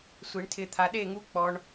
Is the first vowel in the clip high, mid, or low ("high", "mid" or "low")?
high